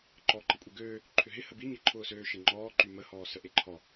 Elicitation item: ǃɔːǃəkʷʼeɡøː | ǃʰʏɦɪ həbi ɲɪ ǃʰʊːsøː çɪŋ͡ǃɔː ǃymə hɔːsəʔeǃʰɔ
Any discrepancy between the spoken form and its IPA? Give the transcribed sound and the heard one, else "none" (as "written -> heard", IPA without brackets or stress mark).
ç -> ʃ